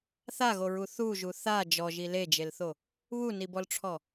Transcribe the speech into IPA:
θ a ɣ o ɹ u θ u ʒ u θ a d͡ʒ ɔ ʒ i l e d͡ʒ e l θ o | β u n i b ɔ l ʈ͡ʂʰ ɔ

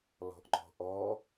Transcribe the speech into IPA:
l ɔ̤ ʔ ŋ͡ǃ ɔ̤ ʔ ɔ

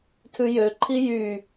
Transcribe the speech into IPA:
tʰ ʉ j ø ǃʰ i j y

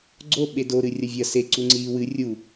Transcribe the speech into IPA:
ɡ͡ǀ o ɓ e d o ɾ ɨ rʲ ɐ vʲ ɐ s e ǀ u ŋ͡ǀ iː w ɨ rʲ u

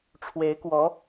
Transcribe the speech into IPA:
ʈ͡ʂʰ w e˧˥ ɪ̯ k w ɔ˧˥

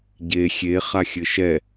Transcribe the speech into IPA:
ɟ e xʲ e χ a xʲ ɘ ʃ ɛ

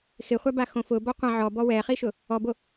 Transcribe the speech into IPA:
x ɪ χʷ a b a x õ f ʊ b ɔ qʷ ã ʕ ɔ b ɔ w ɛ χ i ʃ ʊ | ɔ b o

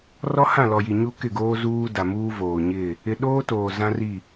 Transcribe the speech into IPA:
r ɔ˦ h ã˦˨ l ɔ˨ j i˨ ɲ u˦ k ɪ˦˨ ɡ oː˦ z uː˦ d a˨ m uː˦ v oː˨ ɲ ɪ˦˨ | ɪ˦ ɗ oː˦ t oː˨ z ã˦ r i˦˨

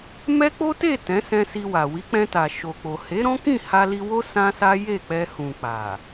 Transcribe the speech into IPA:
m ɛ˦ k͡p o˦ t e˦˨ t ɛ̃˨˦ s ɛ̃˧ s i˧ w a˨ w i˨˦ k͡p ɛ̃˧ t a˨ ʃ o˨ k͡p o˨ h e˨˦ ɾ ɔ̃˦ k ĩ˦˨ h a˧ l i˧ w o˦ s ã˦ s a˦ j e˦˨ k͡p ɛ˧ h ũ˨ k͡p a˨

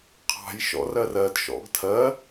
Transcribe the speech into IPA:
qʰ ɑ̤ j ʃ ɔ̰ r ɜ r ɜ d ʃ ɔ̰ ɡ tʰ ɜ

